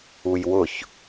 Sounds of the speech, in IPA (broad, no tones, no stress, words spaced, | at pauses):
ujwʊç